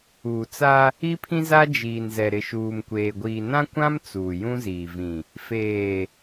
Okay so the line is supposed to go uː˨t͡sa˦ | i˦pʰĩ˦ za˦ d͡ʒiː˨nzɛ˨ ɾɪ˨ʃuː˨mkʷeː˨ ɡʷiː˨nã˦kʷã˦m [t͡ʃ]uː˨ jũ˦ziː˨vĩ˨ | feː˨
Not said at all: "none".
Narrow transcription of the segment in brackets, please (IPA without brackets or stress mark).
t͡s